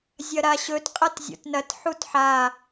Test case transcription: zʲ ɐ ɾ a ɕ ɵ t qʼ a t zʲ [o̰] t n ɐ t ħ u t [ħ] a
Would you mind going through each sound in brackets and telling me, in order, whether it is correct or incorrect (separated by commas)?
correct, correct